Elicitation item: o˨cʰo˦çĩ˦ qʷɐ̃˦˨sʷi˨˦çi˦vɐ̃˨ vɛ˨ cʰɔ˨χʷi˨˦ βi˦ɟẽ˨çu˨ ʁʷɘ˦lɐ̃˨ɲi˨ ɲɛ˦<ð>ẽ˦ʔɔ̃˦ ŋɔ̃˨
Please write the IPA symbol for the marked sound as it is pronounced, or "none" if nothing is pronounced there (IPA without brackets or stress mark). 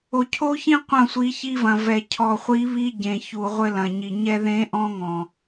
ð